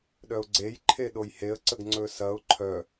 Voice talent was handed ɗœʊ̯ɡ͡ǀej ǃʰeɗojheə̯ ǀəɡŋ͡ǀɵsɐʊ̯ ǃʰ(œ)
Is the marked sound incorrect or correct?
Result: correct